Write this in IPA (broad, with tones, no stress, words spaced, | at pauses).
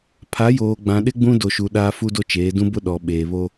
pʰa˨˦joː˨ ɡ͡bã˨ɗɪ˦ ɡ͡bũ˦ do˨ʃu˨ ɗaː˦fu˦do˦t͡ʃeː˨˦ dũ˦bʊ˦ ɗɔ˨ ɓeː˨βo˦